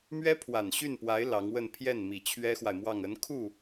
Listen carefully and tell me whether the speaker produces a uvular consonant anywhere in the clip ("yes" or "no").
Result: no